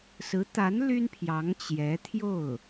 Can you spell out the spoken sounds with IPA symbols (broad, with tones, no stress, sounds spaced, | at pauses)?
s ɹ̩˧˥ t̪ a˧˥ n l y˥ n pʰ j ɑ˧˥ ŋ t͡ɕ j ɛ˧˥ t̪ʰ j o˥˩ ʊ̯